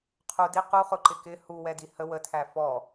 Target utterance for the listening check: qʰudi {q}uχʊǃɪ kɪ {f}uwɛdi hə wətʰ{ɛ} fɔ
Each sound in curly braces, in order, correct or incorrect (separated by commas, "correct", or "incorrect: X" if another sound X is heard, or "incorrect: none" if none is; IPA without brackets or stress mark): correct, incorrect: h, incorrect: æ